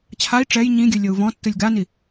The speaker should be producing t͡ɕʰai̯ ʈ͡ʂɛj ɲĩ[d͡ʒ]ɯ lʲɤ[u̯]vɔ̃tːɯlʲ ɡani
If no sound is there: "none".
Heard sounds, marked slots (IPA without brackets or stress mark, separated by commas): ɡʲ, u̯